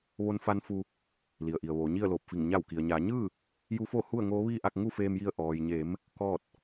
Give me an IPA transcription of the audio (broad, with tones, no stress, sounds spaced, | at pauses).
ʋ o˧˥ n f a˧˥ n f u˧ | l i˩ ə̯ ʔ i˩ ə̯ ʋ oː˩˧ ɲ i˥˨ ə̯ l oː˧˩ p̚ f i˧˩ ŋ ɲ a˧˩ w k i˩ ə̯ ɲ aː˩˧ ɲ ɯː˥˨ | j u˧˥ f o˥˨ h u˥˨ ə̯ ŋ oː˧˥ ʋ iː˥˨ ʔ a˥˨ k̚ ŋ u˥˨ f eː˧ m j i˧ ə̯ ʔ ɔː˩ j ɲ e˩˧ m | k ɔː˥˨ t̚